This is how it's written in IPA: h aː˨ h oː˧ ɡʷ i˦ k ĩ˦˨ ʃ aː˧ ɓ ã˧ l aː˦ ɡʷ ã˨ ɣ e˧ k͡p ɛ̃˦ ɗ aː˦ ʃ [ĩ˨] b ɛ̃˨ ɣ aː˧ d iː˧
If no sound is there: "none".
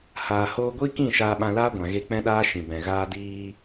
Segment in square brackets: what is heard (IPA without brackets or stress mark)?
ĩ˨